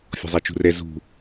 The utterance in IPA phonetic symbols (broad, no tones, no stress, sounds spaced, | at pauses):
fʲ ɔ̤ zˤ æ t͡ʃ ṳ r ɛ z ṳ